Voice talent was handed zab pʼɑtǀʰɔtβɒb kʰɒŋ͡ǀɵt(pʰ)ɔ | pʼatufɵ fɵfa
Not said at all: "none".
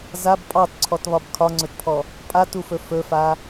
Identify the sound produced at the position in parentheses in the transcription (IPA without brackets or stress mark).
pʰ